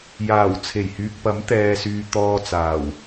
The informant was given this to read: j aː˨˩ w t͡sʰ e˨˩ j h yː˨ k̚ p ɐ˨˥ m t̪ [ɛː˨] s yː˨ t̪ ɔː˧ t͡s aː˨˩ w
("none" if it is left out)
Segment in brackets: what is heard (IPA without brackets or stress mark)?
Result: ɛː˨